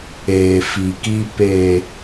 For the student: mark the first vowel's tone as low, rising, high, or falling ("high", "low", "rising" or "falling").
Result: low